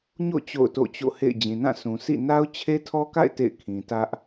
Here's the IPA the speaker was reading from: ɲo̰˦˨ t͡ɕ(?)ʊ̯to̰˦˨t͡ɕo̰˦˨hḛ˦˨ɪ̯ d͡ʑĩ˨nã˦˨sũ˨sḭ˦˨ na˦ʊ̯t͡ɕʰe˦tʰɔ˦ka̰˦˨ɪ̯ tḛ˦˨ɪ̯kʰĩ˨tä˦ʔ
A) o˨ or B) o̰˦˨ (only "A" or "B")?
B